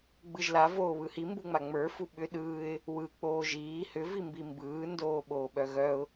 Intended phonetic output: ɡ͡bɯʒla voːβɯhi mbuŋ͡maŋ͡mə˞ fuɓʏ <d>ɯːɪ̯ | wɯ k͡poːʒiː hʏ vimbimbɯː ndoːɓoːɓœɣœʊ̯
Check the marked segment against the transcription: incorrect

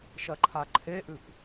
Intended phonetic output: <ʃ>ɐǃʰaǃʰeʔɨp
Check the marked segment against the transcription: correct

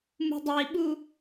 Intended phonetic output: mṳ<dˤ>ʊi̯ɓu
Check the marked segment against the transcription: correct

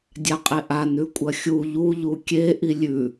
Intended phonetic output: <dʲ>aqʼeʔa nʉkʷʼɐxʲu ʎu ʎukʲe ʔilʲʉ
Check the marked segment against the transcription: correct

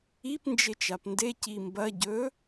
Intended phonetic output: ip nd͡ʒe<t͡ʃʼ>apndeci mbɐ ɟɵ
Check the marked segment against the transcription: incorrect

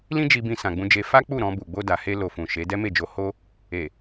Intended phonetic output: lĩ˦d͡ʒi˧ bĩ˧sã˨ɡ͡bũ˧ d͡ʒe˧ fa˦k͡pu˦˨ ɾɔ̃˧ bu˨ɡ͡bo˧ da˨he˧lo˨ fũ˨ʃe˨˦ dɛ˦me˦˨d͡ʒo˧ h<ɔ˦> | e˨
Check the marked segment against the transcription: incorrect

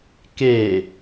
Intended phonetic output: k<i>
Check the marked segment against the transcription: incorrect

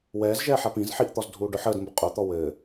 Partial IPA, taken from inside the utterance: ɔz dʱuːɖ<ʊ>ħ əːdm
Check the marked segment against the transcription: correct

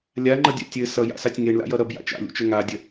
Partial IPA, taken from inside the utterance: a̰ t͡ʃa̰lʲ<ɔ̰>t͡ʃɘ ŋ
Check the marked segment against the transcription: incorrect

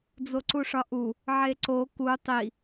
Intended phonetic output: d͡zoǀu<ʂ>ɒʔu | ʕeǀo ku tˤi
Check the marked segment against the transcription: correct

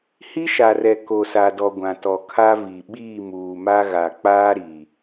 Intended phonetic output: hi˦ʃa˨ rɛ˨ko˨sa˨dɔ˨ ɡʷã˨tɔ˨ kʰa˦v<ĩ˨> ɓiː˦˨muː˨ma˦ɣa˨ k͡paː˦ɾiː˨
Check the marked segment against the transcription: incorrect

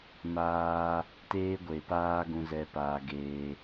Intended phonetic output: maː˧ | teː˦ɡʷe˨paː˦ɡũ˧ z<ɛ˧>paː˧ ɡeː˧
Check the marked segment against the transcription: correct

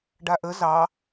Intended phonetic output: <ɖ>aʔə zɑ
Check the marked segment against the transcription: correct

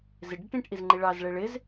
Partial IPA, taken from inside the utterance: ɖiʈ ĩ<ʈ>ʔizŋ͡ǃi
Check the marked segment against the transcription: correct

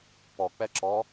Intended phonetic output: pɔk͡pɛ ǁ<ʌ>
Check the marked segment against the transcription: incorrect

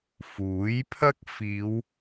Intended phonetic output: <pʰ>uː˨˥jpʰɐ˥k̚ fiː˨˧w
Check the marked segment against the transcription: incorrect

